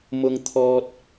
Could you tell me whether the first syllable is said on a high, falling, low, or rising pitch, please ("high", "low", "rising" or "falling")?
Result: high